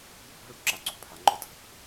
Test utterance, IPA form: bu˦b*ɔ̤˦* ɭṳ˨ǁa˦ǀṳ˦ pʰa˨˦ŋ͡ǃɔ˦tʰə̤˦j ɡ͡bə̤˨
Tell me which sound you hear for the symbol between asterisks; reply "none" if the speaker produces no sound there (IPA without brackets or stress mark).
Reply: ɔ̤˦